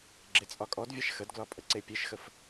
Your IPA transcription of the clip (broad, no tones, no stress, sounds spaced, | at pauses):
ɡ͡ǁ e t͡sʼ ɒ kʼ ɔ d vʲ a ʃ x ə d ɡ l ɒ pʼ ə ǀ e pʲ e ʃ x ə f